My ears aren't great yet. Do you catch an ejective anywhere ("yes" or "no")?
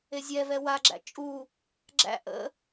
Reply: yes